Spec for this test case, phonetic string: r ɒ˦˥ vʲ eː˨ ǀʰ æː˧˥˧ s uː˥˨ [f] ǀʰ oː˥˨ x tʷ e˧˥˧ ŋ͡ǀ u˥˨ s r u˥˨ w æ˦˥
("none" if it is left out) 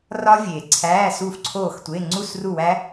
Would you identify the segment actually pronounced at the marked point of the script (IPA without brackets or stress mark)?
f